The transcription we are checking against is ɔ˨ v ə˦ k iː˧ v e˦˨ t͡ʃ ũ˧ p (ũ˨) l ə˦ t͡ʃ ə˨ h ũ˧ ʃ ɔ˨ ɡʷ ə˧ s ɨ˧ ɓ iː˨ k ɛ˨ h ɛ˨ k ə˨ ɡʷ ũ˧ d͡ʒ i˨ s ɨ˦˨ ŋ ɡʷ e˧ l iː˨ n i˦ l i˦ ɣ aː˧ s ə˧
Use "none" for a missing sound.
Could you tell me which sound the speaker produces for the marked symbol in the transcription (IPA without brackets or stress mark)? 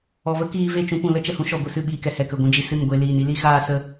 ũ˨